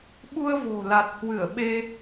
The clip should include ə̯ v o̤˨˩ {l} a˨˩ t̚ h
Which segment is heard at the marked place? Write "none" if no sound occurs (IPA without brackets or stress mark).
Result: l